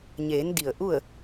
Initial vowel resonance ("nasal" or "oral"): oral